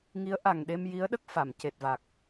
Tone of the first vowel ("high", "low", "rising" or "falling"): rising